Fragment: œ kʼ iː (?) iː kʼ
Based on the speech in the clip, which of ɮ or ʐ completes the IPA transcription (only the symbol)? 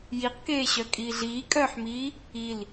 ɮ